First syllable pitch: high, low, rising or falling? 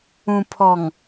low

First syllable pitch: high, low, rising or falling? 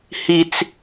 high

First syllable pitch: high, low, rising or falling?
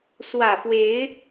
low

